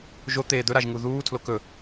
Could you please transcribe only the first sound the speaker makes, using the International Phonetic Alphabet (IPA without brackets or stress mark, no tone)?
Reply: ʒ